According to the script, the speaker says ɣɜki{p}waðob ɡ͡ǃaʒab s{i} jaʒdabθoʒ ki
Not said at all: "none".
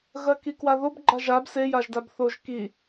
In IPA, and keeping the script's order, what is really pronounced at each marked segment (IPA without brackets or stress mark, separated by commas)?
k, e